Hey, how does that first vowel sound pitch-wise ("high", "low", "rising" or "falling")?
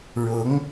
rising